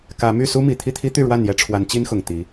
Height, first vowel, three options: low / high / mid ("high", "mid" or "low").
low